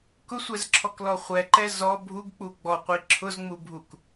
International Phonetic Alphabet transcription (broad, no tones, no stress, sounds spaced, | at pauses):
k ʊ sʷ ɛ z ǁʰ ɔ k l ɔ χʷ ɛ ǃ ɛ z ɔ bʱ u ɡ k͡p u ɡ͡b ɔ qʷ i ǁʰ ʊ z ŋ͡m u bʱ u k